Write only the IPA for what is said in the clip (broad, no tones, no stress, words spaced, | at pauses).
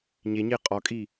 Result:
ɲeɲe qʼɒkʼi